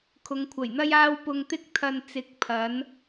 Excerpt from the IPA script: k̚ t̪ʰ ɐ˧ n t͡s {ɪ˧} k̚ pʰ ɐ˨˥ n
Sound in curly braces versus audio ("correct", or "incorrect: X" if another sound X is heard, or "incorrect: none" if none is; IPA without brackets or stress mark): incorrect: ɪ˨˥